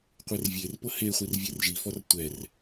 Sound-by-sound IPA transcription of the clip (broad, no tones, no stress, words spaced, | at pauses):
qʷervʲerpɤ heχʷir vʲerʒifɔr tʷɛr